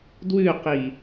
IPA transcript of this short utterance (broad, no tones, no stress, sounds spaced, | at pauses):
d w ʉ q i